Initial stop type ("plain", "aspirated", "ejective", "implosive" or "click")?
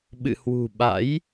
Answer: implosive